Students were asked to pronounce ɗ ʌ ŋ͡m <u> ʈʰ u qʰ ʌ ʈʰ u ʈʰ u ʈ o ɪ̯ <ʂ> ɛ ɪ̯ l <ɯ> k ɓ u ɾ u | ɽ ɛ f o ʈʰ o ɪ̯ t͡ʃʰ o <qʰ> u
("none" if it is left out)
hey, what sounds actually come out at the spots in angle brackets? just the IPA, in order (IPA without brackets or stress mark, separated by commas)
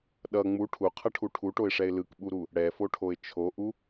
u, ʂ, ɯ, ʔ